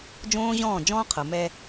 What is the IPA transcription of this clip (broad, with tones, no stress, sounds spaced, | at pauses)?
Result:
d͡ʒ õː˦ ʑ ɔ̃ː˦˨ d͡ʒ ɔ̃ː˦ qʰ ɤ˨ m ɛ˦